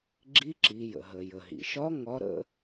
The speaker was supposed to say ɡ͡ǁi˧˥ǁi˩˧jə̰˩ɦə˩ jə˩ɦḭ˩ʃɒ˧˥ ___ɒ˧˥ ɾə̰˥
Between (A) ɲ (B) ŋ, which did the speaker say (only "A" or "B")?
B